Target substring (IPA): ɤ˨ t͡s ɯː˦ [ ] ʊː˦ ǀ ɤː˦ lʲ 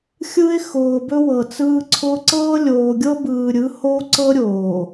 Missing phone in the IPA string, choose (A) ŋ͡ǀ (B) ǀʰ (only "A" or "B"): B